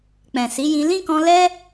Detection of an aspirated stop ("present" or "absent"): absent